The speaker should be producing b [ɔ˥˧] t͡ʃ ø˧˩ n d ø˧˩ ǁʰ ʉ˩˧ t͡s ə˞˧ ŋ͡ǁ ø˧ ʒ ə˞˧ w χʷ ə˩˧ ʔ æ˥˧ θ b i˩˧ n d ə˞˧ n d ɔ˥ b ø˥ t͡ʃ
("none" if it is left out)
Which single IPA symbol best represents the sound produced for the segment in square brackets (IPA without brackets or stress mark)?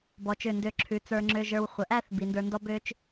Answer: ɔ˩˧